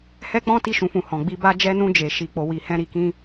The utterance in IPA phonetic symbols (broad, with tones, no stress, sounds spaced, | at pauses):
h ɛ˦ k͡p ɔ̃˦ t i˧ ʃ ũ˨ f ũ˨ h ɔ̃˨ ɡ͡b i˧ b a˧ d͡ʒ ɛ˧ n ũ˧ d͡ʒ e˨ ʃ i˨ k͡p o˨ w i˨ h ɛ̃˧ ɾ i˨ k ĩ˧